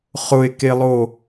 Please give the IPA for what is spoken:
χʊe̯kelˠo

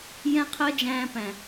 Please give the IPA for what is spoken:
jɛ̃˦qʰɜ˦d͡ʒæ̃ː˧pæ̃˨

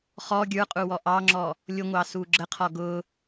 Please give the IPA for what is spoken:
χɔ ɡʲə˞qʼuwɔ ʔɑŋ͡ǁɔ | lʲʊŋʷɑsu ɡ͡ǁəqʰɔ ɡʊ

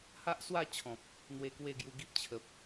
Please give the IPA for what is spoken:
ha˦ʔswa˥˧t͡ɕʰɔ̃˨p̚ | n̪we˧kwe˥˧ɡju˧ ɡi˦p̚t͡ɕʰə˨p̚

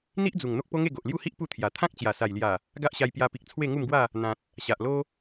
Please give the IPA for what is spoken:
n̪i˦ʔd͡zu˨˩ŋ n̪o˦k̚po˦ŋe˥˧ ɡo˨ʔlju˥˧hi˦ʔ pu˥˧t̪ʰja˨˩ t̪ʰã˦k̚t͡ɕja˨˩sa˨˩jlja˨˩ | ɡa˦ʔɕa˧jpja˧pi˨k̚ t͡sʰwe˥˧ŋu˥˧mɡwa˥˧ | n̪ã˨t̚ | ɕa˨ʔlo˦

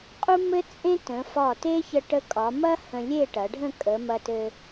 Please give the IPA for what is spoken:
qʼu˥mɘ˥t͡sʼẽ˥ tə̃˩˧fɒ˧˩te˥ çə˧ʈə˧kʼɒ˩˧ mɐ˥ hə̃˧lʲe˥˧ʈɐ˩˧ɖʱə̃˥˧ kʼə˩˧mɐ˧tɘ˧

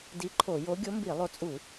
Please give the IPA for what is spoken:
di˧˥ǃʰo˧˩˧jo˧˥ ɡʲo˧˥mbi˧˩˧lˠo˧˥t͡sʼu˧˩˧

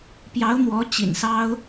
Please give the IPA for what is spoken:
pjɑ˧˥ʊ̯n̪wɔ˧˥ t͡ɕḭ˨˩nsɑ˥ʊ̯

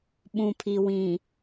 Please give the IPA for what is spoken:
ɓũ˨pʰi˨wĩ˨

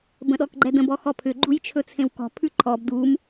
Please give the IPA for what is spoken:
bə̃ɗɔkɡ͡ǃɛdə̃ bɔxɔpʰʏ ɡ͡ǃujt͡ʃʰɵt͡sʰẽwkɔ̤ pʰʉǃʰɔb dum

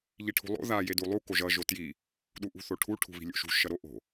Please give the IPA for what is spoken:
ʎiʈʰṳlˠo̰ ða jedulˠu koʒʌ ʒotji | ɗuʔṳθoʈʰu ʈʰṳβi̤lʲo̰ʃṳ ʃʌɾoʔo̤

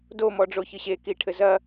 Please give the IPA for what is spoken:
domɔɖ͡ʐoçɨ ɕekiʈʰɘ zɐ

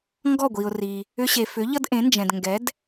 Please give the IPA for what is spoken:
ŋɡɔ˥˩ɡʷi˩ʊ̯ri˩ | ʏ˧ɕe˩fʏ˩˥ ʎʌ˥dʔẽ˩˥nd͡ʒɛ̃˩d ŋɡɛ˩˥d

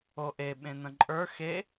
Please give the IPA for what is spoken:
oʔe ɓẽnə̃ǃʼə˞ xe

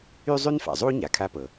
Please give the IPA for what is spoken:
y˥zˤy˥nfa̰˩zˤu˥ ɲa˩kʰa˥pɤ˩

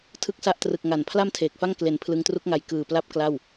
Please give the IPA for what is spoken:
tʰɯ˥˩k̚sa˥˩ʔ trɯ˨˩k̚ ŋa˨˩n pʰla˥˩mtʰeː˨˩k̚fa˥˩ŋ kle˨˩n pʰlɯ˧ŋtru˦˥k̚ŋa˧j kɯː˨˩pla˦˥p̚ kla˥˩w

